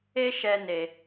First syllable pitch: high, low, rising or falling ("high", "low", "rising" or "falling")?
high